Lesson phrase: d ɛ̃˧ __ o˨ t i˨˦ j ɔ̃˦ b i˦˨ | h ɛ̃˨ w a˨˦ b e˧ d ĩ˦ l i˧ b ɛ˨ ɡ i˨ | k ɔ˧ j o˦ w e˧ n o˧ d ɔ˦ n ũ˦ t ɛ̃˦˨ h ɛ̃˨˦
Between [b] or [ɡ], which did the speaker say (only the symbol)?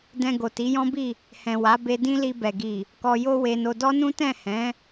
ɡ